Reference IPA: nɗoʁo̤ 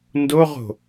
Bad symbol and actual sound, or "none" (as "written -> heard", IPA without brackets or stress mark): ɗ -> d